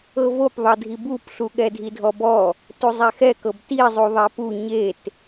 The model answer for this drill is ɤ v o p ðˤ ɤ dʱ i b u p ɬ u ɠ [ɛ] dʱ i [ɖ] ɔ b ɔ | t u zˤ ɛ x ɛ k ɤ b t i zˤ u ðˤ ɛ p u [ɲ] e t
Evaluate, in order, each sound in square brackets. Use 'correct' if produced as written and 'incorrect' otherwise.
correct, incorrect: dʱ, correct

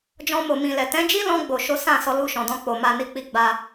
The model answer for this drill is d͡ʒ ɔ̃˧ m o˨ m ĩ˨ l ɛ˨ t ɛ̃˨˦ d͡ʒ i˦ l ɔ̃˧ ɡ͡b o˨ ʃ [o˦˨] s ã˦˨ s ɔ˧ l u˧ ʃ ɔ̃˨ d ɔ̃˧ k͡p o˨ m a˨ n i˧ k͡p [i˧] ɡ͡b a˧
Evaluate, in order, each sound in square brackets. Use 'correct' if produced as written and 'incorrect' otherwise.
incorrect: o˨˦, correct

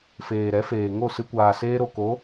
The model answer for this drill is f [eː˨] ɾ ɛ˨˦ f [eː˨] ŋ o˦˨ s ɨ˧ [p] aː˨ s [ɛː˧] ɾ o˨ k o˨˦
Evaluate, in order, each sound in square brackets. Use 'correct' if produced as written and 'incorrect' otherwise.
correct, correct, incorrect: kʷ, incorrect: eː˧

